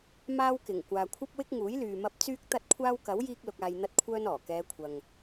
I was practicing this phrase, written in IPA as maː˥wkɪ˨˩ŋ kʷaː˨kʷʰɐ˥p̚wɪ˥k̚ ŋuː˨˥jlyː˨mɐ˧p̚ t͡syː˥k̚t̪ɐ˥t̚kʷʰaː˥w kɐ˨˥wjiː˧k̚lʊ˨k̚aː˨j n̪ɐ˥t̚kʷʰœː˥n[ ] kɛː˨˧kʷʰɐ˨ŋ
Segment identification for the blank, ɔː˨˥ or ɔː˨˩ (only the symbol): ɔː˨˩